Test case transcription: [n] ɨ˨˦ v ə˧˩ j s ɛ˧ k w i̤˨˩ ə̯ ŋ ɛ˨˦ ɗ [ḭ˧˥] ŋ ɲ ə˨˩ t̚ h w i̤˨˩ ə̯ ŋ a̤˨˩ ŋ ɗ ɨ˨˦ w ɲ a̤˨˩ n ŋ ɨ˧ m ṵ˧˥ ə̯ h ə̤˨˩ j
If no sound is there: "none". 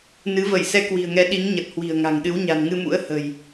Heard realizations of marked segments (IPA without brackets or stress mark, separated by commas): n, i˨˦